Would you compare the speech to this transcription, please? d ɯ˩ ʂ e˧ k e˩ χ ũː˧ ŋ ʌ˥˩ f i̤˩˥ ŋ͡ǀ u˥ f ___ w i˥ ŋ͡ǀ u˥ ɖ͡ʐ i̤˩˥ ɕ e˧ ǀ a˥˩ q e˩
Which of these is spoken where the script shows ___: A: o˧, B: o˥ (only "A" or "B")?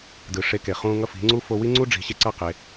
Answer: A